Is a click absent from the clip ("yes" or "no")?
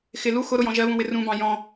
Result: yes